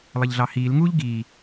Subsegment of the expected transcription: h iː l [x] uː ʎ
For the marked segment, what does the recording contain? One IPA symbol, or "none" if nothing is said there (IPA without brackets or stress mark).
ŋ